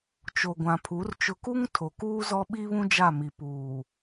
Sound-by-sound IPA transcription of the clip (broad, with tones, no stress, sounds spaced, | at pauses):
t͡ʃ o˨ ɡʷ ã˨ pʰ u˨˦ r t͡ʃ ʊ˨ k u˦ ŋ tʰ o˨ k uː˦ z ɔ˦ ɓ i˦ β ũ˦ d͡ʒ a˦˨ m i˨ p uː˨